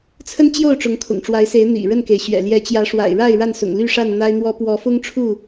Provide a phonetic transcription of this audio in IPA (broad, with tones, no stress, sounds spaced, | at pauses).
t͡sʰ ə˦ n t͡ɕ j o˥˨ ʊ̯ ʈ͡ʂ ʊ˨˦ ŋ kʰ ʊ̰˨˩ ŋ ʈ͡ʂ w a˨˦ ɪ̯ s e˨˦ ɪ̯ n̪ ḭ˨˩ ɻ ə˥˨ n k e˩ ɪ̯ ɕ ɥ ɛ̰˨˩ l j ɛ˨˦ t͡ɕ j ä˨˦ ʂ w a̰˨˩ ɪ̯ ɻ a˥˨ ɪ̯ ɻ a˥˨ n s ʊ̰˨˩ ŋ l y˥˨ ʂ a˥˨ n n̪ a˦ ɪ̯ n̪ w ɔ˦ p w ɔ˨˦ f ʊ˦ ŋ ʈ͡ʂʰ u˥˨